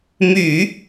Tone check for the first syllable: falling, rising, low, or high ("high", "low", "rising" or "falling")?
low